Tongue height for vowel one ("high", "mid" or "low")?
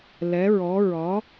mid